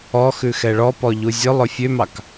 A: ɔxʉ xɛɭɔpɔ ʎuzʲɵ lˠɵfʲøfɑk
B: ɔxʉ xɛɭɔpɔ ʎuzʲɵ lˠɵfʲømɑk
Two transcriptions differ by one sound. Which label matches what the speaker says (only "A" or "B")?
B